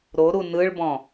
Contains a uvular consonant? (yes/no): no